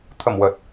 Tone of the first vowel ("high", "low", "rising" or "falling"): low